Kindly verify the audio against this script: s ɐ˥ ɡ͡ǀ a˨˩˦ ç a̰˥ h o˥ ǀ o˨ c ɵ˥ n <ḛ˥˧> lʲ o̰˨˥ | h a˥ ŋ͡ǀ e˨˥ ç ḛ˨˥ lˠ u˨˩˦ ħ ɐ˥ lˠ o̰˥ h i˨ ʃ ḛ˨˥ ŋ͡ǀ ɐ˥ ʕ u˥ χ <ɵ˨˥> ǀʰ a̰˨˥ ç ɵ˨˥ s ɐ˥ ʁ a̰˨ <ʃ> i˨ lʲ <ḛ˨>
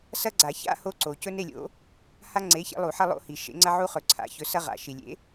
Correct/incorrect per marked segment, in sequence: incorrect, correct, correct, incorrect

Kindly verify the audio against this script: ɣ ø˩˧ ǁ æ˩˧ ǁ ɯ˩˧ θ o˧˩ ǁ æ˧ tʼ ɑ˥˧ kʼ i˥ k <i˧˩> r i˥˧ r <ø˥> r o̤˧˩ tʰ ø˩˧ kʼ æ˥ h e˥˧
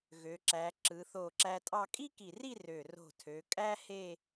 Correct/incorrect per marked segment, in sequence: correct, incorrect

